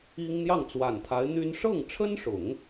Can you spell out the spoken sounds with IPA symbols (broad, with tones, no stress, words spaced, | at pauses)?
i˥ŋ n̪jɑ˥˩ŋt͡swa˨˩nt̪ʰa˧˥ɪ̯ n̪y˥n ʂɤ˥˩ŋʈ͡ʂʰə˥nʂʊ˨˩˦ŋ